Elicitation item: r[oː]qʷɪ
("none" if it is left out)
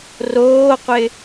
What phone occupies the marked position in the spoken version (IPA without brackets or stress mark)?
oː